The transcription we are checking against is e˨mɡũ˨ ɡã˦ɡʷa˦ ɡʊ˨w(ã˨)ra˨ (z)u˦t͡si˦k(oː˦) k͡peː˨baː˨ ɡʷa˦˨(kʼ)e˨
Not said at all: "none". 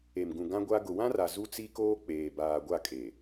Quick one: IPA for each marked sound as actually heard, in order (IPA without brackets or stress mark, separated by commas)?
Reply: ã˦, z, oː˦, kʼ